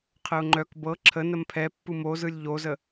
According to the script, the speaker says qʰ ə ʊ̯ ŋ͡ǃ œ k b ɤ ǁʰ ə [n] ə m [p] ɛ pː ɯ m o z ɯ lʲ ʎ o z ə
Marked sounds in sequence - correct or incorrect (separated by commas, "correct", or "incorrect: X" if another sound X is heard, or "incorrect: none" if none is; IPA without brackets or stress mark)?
correct, incorrect: pʰ